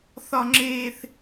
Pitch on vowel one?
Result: high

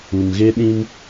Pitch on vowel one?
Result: low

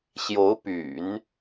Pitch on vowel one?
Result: rising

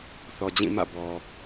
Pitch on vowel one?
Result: low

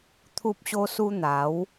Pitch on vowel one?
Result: high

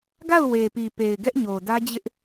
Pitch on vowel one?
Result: falling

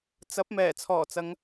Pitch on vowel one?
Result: rising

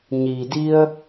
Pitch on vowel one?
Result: low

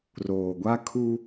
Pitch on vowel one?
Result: low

